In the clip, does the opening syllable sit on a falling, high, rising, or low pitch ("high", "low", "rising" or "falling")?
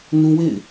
high